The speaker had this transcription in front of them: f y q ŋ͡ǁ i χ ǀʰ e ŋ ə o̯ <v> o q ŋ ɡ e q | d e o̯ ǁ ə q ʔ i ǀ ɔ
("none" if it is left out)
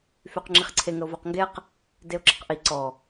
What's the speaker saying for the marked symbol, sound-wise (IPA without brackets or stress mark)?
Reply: v